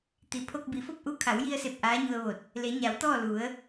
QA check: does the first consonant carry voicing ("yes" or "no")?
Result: no